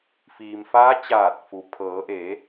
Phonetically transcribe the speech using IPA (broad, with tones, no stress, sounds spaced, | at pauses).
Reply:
f iː˩ m f aː˧˥ t͡ɕ aː˧˩ t̚ f u˩ pʰ ɤː˩˧ ʔ eː˩˧